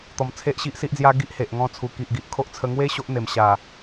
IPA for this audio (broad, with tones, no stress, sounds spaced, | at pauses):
t̪ ɔ˧ m t͡sʰ e˦ ʔ ɕ i˦ ʔ s i˦ ʔ d͡z j a˦ ɡ i˦ ʔ h e˨ ʔ ŋ ɔ̃˧ t͡sʰ u˨˩ k i˨ ʔ ɡ i˨ ʔ kʰ o˦ ʔ t͡sʰ ə˧ ŋ w e˦ ɕ o˦ ʔ n̪ e˨˩ m ɕ a˨˩